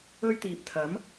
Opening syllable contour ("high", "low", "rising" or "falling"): high